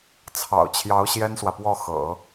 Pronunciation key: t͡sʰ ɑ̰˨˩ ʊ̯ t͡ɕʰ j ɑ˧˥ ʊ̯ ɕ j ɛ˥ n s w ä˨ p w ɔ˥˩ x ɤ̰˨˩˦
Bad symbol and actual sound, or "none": none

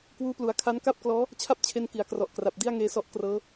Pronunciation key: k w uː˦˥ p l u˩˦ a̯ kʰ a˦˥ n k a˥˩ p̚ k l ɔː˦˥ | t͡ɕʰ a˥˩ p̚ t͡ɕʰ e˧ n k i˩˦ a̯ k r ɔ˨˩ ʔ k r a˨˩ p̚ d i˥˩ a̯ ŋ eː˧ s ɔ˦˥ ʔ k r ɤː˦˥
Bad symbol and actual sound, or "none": none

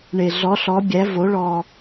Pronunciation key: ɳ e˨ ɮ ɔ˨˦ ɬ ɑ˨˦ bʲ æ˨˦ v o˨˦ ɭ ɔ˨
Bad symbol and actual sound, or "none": ɑ˨˦ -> ɔ˨˦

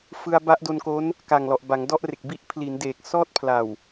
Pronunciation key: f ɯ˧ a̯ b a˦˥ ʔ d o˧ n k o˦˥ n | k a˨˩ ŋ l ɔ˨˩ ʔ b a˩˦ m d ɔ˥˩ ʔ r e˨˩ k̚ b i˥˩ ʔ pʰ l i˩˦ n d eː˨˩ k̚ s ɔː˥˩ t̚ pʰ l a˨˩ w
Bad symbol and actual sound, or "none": m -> ŋ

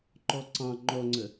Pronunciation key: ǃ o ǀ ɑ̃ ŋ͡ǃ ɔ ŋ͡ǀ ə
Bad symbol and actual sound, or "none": o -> ɔ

